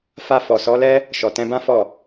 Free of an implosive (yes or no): yes